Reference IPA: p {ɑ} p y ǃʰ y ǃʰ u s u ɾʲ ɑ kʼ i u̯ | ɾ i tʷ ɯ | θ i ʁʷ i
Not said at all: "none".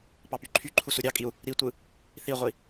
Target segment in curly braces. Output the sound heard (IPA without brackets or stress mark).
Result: ɑ